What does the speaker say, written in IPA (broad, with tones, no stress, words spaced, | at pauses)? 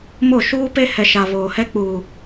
mo˦˨ ʃuː˦pe˦ hɛ˨ʃa˨ βoː˨hɛ˦k͡puː˨